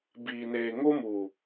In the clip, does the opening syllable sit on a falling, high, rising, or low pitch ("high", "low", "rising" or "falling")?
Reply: low